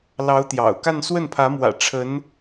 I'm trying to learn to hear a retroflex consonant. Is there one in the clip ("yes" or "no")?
yes